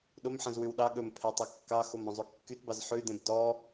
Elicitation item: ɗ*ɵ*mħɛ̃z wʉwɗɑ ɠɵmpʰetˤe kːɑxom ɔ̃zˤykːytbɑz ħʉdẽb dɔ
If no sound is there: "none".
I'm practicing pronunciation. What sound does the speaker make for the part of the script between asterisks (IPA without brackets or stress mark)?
o